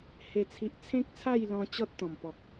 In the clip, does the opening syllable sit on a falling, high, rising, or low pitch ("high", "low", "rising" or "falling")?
falling